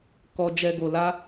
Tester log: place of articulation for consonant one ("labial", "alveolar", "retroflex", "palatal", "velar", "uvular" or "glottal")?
velar